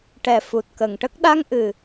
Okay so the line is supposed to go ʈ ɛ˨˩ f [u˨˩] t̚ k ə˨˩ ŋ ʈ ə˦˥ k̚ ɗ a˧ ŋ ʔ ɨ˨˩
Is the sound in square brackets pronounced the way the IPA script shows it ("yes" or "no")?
yes